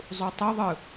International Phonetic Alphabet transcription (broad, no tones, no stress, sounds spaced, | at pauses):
zˤ u tˤ u ðˤ ɯ